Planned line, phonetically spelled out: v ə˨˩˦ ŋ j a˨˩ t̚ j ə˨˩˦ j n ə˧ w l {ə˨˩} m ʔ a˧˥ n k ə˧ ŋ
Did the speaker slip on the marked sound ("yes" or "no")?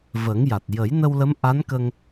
yes